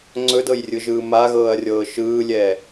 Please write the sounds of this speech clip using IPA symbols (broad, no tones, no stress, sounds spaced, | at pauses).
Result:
ŋ͡ǀ ɵ d ɤ j rʲ ɯ ʒ ɯː m a ɣ ɤː ɐ̯ rʲ ɤː ʃ ɯː lʲ ɛ